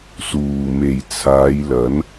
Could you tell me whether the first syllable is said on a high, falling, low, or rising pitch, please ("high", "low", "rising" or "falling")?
low